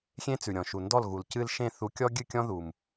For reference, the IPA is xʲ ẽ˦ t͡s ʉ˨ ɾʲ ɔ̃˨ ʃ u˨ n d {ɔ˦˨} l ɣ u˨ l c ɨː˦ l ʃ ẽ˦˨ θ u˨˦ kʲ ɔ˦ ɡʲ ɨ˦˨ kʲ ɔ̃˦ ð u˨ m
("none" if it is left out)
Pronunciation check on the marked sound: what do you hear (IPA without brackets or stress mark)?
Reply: ɔ˦˨